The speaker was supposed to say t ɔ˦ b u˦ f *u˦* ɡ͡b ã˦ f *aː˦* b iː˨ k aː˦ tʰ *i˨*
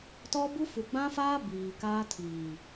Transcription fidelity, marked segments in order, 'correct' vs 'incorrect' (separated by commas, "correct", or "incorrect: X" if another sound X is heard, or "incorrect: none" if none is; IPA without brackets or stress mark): incorrect: u˨, correct, incorrect: iː˨